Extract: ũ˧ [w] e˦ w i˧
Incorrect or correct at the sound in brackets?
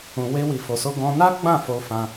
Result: correct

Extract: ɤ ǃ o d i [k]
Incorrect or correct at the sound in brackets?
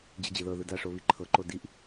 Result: incorrect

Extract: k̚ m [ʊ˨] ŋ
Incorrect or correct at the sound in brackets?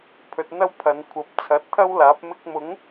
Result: incorrect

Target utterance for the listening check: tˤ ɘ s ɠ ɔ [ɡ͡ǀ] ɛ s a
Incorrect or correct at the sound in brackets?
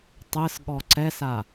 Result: incorrect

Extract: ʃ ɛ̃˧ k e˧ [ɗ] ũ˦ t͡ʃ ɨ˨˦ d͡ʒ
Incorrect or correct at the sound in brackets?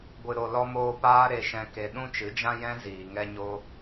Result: correct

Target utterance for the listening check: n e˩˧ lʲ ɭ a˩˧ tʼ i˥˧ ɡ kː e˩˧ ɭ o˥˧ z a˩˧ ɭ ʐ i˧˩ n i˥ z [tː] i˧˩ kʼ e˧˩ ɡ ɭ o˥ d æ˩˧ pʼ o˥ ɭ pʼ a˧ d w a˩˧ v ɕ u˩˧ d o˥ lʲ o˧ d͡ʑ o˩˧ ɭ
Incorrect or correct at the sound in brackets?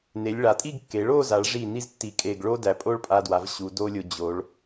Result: correct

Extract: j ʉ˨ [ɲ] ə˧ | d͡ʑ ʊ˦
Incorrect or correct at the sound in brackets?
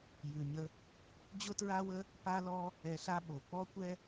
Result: correct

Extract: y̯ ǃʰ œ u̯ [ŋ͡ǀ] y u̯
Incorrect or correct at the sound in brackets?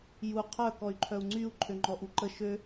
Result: correct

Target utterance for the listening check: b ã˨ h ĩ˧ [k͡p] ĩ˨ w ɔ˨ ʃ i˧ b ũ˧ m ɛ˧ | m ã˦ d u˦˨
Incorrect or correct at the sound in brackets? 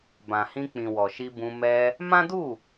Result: correct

